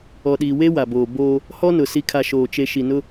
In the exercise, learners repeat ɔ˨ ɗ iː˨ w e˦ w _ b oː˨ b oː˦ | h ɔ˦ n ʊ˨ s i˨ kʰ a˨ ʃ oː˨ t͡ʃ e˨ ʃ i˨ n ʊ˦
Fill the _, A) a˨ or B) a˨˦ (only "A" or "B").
A